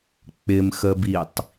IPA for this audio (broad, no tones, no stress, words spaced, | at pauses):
k͡pɪmxəbitˤ